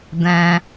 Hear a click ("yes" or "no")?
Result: no